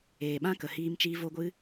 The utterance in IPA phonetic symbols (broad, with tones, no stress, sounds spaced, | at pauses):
eː˨ ɓ ã˦ k ə˨ h iː˧ m t͡ʃ iː˧ v o˦ ɡʷ ɨ˦